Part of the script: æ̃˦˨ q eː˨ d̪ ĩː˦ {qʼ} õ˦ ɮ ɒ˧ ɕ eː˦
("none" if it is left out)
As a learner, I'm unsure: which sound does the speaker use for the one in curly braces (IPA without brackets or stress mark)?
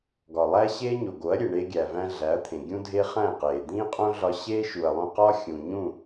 qʼ